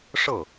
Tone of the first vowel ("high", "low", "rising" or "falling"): falling